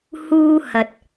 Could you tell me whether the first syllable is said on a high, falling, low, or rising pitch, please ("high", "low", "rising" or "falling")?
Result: high